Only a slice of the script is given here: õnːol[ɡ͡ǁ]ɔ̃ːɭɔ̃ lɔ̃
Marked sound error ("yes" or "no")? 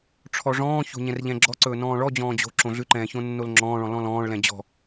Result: yes